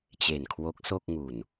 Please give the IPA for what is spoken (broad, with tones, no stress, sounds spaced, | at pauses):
t͡ɕ e˨˩ n kʰ w o˦˥ k̚ s o˥˩ k̚ ŋ u˨˩ n